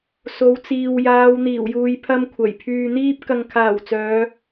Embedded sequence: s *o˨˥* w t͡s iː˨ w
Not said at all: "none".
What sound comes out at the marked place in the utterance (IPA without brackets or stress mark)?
o˨˧